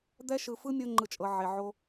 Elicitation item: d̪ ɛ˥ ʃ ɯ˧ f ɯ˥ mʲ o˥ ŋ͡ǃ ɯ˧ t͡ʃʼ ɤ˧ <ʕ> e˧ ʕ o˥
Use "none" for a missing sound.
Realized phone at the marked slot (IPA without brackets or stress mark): ʕ